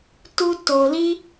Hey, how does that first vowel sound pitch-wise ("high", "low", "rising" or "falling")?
high